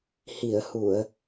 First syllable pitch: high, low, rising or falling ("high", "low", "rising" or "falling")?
low